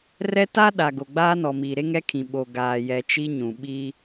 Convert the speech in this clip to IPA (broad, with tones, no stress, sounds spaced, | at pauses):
r ɛ˦ t a˦ ɗ a˨ ɡ o˨ ɡ͡b aː˦ n ɔ˨ m iː˨ ɾ e˦ ŋ ɛ˦ kʰ ĩ˨ ɓ o˨ ɡ aː˨ j ɛ˨ t͡ʃ i˦ ɲ ũ˨ ɓ i˦